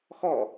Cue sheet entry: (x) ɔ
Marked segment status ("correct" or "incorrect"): correct